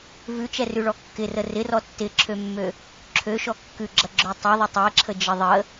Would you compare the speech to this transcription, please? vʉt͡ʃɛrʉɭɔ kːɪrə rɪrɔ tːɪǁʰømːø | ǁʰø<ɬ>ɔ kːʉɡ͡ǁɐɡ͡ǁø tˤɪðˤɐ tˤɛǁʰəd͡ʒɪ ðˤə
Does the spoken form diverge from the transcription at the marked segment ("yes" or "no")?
yes